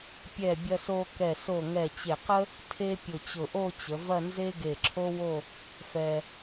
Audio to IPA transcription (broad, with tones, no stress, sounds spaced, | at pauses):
pʲ ɛ˧˩ bʲ ɐ˧ s o˧ k ɛ˧˩ s o˧˩ ŋ ɛ˧˩ t͡ɕ e˧˩ q ə˥ | tʰ e˧ pʲ ʊ˧˩ t͡ɕ ʊ˧˩ ʔ o˥˧ t͡ɕ ə˩˧ v ɐ˥˧ n z e˥ ɡ e˧˩ ǁʰ o˥ w o˥˧ | f ɛ˧